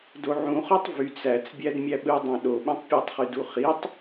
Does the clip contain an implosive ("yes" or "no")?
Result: yes